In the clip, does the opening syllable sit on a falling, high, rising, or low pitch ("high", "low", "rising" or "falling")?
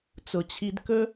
low